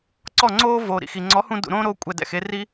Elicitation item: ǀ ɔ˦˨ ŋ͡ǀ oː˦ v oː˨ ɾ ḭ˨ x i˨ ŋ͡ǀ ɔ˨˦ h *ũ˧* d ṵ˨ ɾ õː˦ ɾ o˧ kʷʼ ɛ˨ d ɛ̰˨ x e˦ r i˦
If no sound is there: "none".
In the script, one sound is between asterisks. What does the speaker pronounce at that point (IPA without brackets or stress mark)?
ũ˧